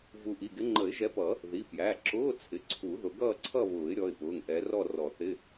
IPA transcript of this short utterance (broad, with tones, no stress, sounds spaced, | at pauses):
v u˨˦ ʔ i˩˧˩ ɡ ɪ˨˦ ŋ͡ǃ ə˨˩˦ ɪ̯ ʒ ɛ˨˦ p ʌ˨˩˦ | ð i˩˧˩ p j æ˩˧˩ ǁ ʊː˧˥˧ t͡sʰ ɪ˩˧˩ ǀʰ u˨˩˦ ð ʊ˨˦ ɡ ʌː˥˧ ǀʰ ʌ˥˧ β ʊː˨˩˦ ɪ̯ ɾʲ ɔ˩˧˩ ɪ̯ p ʊː˩˧˩ ŋ ʔ ɛ˨˦ r ɔ˥˧ r ɔ˨˩˦ θ ɪ˧˥˧